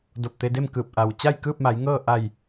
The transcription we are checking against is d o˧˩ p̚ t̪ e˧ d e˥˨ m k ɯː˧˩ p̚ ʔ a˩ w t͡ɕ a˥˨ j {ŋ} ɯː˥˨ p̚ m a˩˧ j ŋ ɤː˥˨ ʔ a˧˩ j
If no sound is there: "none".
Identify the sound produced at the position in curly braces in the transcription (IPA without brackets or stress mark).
k